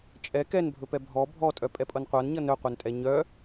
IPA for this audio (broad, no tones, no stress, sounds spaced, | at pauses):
t͡ʃʼ ɛ k ɛ n bʱ ɵ p ɛ bʱ ɔ bʱ ɔ tʼ œ pʼ ɛ pʼ ʌ n qʷ a n ɲ ʌ n œ qʷ œ n tʼ ɛ ɲ œ